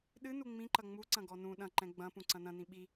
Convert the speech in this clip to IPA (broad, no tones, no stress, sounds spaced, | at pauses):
ɗ ɨ n u ŋ͡m ĩ ǃ ɐ ŋ͡m u ǀ ɐ̃ ɡ ɔ n ũ ɗ ɐ̃ ǃ ɛ̃ ɡ͡b ɐ̃ p ũ ǀ ɐ̃ n ɐ̃ n ĩ ɓ i